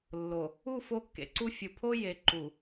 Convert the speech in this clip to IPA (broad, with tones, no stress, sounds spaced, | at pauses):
lː o˨ | u˦˨ f o˦ kː ḛ˨ ǀ u˦ fʲ u˨ pʰ o˦ j e˨ ǃ u˨